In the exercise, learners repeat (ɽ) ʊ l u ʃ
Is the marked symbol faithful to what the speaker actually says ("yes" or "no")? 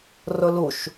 no